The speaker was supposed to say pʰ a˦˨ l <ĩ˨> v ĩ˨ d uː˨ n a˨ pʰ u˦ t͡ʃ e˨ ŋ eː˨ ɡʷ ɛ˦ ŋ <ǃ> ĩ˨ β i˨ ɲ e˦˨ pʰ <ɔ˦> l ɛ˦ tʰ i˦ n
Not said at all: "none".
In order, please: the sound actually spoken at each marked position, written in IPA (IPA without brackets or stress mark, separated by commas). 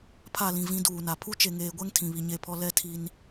ĩ˨, tʰ, ɔ˦